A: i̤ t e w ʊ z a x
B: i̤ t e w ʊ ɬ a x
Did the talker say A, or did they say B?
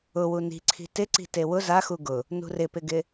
A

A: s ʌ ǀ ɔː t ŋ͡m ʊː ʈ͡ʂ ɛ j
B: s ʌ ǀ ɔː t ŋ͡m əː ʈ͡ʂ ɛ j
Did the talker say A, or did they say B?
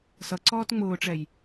A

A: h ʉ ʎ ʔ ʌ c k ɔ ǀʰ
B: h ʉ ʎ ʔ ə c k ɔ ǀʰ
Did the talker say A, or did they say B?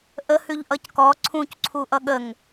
A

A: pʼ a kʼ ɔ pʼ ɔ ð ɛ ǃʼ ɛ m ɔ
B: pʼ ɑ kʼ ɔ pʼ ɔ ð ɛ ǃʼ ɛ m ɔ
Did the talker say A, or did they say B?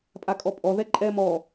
A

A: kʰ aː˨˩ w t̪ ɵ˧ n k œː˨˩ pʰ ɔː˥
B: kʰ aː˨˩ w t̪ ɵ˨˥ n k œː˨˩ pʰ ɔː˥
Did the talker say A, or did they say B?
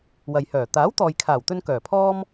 A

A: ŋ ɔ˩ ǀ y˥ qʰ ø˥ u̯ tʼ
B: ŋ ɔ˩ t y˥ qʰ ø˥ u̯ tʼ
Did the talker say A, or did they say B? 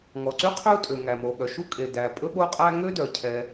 A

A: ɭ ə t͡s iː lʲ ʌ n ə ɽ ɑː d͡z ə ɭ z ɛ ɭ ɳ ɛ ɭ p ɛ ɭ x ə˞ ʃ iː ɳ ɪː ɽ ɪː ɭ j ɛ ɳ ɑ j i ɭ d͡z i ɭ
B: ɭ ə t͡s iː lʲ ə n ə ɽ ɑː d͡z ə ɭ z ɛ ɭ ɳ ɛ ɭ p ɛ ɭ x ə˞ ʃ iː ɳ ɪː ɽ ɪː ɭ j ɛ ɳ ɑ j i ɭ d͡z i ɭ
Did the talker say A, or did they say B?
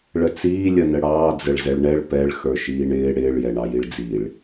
A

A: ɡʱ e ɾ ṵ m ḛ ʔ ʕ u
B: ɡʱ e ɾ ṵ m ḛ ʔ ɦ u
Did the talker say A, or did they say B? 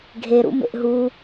B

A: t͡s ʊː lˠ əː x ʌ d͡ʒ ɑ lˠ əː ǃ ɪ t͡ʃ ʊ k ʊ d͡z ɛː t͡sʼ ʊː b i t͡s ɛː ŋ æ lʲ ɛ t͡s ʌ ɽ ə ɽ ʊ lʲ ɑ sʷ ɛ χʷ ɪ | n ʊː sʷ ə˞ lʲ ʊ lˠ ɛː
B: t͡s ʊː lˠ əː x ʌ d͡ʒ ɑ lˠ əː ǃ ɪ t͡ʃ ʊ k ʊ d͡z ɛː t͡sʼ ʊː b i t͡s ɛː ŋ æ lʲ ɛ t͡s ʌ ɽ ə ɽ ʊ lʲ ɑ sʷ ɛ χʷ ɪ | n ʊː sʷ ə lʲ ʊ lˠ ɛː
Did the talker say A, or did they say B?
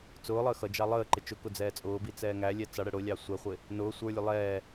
A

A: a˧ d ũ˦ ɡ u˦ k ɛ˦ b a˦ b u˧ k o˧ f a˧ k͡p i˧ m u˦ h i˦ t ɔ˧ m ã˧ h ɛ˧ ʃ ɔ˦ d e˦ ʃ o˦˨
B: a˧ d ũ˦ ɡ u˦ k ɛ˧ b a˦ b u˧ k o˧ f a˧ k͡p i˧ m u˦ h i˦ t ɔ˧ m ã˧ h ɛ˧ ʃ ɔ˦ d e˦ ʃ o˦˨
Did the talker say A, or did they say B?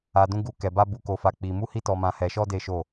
B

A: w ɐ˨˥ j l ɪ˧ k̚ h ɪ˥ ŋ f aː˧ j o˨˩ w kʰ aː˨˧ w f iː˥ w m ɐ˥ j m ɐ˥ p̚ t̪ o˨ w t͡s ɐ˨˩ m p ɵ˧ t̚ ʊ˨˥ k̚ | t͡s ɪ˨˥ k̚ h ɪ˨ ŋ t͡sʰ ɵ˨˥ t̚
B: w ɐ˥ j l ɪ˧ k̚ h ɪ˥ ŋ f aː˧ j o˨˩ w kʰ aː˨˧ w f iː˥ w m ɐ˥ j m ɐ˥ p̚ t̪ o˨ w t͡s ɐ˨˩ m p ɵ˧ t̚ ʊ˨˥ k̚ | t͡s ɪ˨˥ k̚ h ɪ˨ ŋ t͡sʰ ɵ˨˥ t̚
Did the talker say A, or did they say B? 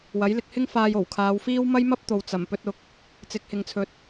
A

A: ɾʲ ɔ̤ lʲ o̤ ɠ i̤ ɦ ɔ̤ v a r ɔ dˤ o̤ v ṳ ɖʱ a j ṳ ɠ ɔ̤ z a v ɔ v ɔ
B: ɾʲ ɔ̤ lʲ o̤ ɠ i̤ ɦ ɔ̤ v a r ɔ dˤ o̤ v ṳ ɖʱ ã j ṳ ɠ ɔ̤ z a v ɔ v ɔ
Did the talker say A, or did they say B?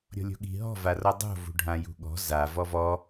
B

